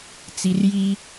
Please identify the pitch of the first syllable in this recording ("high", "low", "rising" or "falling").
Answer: low